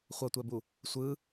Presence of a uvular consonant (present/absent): present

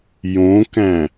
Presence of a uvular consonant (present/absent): absent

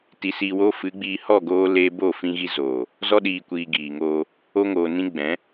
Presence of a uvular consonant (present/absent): absent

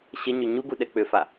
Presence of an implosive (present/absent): present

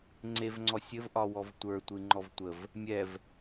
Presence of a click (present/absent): present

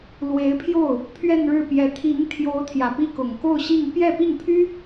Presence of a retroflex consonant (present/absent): present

